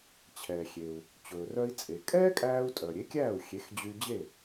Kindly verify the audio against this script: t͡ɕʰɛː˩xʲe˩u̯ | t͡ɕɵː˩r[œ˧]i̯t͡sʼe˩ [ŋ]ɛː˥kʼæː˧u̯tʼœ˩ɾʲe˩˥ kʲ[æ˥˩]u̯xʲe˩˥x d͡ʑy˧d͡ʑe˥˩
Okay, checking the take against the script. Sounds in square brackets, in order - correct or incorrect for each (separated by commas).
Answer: correct, incorrect, incorrect